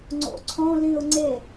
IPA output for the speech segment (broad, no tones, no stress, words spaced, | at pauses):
ŋ͡ǀo̰ǀʰõlĩʊ̯ ŋ͡ǀe